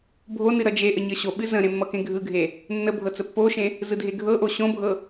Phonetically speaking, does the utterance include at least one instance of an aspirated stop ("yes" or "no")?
no